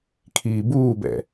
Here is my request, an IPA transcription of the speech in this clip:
kʰ iː b uː b ɛ̰

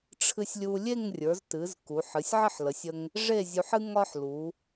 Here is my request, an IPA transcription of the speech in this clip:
ʈ͡ʂʰ ɨ˧ sʲ lʲ u˧ lʲ e˥˧ ŋ rʲ ə˞˩˧ z t ɨ˩˧ z k u˩˧ ħ ɨ˩˧ sʲ ʕ ə˥˧ ħ l ə˩˧ sʲ ə˧ ŋ | ʐ e˥˧ zʲ u˧ ħ ɨ˥ ŋ ɒ˥ ħ l u˩˧

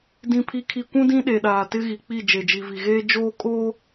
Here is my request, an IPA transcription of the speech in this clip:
d ĩ˨ pʰ i˨ kʰ i˨ kʷ ũ˦ d ĩ˦ ɗ e˨ ɗ aː˨ t ɪ˦ ɣ i˨ k͡p i˦˨ d͡ʒ e˨ d͡ʒ i˨ v i˨ ɣ eː˦ d͡ʒ oː˦ kʼ oː˦

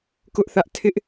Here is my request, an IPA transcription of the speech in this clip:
k ʊ˦ ʔ θ ä˦ ʔ tʰ ɪ˦ ʔ

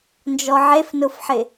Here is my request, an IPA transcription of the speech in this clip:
n d͡ʒ ɔ ʕ e f n ʊ f ħ ɪ

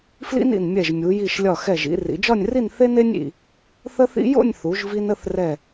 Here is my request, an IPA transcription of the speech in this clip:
f l ḭ˥ n ḭ˧˩ n mʲ ɛ˧˩ ʒ mʲ u˩˧ j i˧˩ ʃ lʲ ɒ˧˩ x ɛ˧˩ ʒ ḭ˧ r ḭ˩˧ d͡ʒ ɒ˥˧ nʲ r i˥˧ n θ e˥ n e˥ nʲ ḭ˧˩ | θ ə˥ θ ḭ˥ j o̰˥˧ nʲ θ u˩˧ ʒ v i˧ n ə˥˧ θ r ɛ˧˩

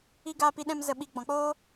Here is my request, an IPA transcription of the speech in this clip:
i˧ ɡ aː˧ p i˧ ɗ ɛ̃˧ m z ə˧ ɓ i˧ ɡ͡b ɔ̃˨˦ k͡p oː˦

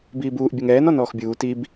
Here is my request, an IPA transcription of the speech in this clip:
b iː b uː ʔ bʲ ɛ ŋ ɛː n ɔ n ɔː x bʲ uː t i b

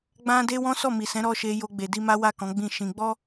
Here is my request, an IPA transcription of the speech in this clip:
ɡ͡b ã˦ d e˦ w ɔ̃˦ s ɔ˦˨ m i˨ s ɛ̃˨˦ ɾ ɔ˦ ʃ e˧ j o˧ ɡ͡b e˨ d i˧ m a˦ w a˦˨ k ɔ̃˨˦ ɡ͡b ĩ˦˨ ʃ ĩ˧ ɡ͡b ɔ˦

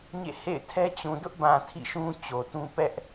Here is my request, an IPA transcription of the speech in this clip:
ɲ ḛ˦˨ h ḛ˦˨ ɪ̯ tʰ ɛ˦ t͡ɕ ũ˨ d ʊ˦ ʔ b ã˨ tʰ ḭ˦˨ ʃ ũ˦ t͡ɕ o˨ t ũ˦ p ɛ˦ ʔ

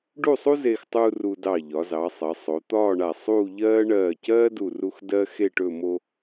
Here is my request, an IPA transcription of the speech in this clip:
ɖ u˥˧ sˤ u˥ z eː˧ x tˤ uː˧ r u˧ d ɑ˧˩ ʎ ɒ˩˧ z ɑ˩˧ sˤ ɜ˩˧ sˤ o˩˧ t̪ ɒː˥˧ ɳ a˧˩ sˤ uː˥˧ ʎ ɜː˥ ɳ ɜː˧˩ c ɜː˥ d u˧˩ r u˧ x d ɜ˥ x e˥˧ ʈ ɵ˥˧ m o˧

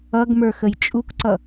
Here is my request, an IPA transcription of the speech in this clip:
ʌ ɡ m ə˞ x ə j t͡ʃʼ u k ǀ ʌ

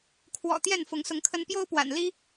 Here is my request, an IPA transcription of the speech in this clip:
kʰ w ɔ̰˨˩ t̪ j ɛ˥˨ n f ʊ˨˦ ŋ s ʊ˨˦ ŋ kʰ ə˦ n p j o˦ ʊ̯ p w a̰˨˩ n l i˦

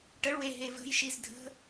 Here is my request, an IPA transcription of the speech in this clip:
ʈ ə ɭ w e ɦ e v ə̤ j ʃ i z dʱ ə̤

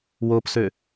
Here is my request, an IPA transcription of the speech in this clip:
w o p s ø

